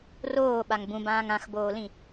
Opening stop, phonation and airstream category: implosive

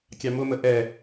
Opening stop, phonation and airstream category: plain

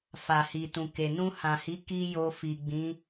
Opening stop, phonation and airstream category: plain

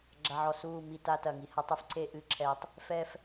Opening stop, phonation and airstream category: click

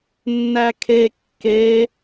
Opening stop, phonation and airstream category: aspirated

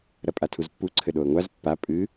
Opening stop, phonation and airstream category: ejective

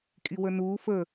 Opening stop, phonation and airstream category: ejective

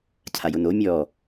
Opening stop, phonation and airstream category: aspirated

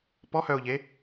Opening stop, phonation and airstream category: plain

